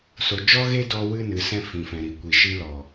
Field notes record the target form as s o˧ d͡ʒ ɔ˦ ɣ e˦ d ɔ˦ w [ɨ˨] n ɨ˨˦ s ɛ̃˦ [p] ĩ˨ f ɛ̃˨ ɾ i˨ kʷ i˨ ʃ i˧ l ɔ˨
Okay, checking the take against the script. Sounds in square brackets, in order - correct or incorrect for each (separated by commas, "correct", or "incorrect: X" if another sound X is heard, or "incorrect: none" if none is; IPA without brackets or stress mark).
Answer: incorrect: ɨ˦, incorrect: f